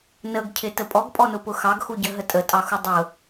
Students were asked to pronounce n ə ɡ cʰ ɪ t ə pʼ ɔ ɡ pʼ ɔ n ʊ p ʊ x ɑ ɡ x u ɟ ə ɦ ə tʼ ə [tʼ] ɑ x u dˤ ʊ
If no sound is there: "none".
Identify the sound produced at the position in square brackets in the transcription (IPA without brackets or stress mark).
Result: tʼ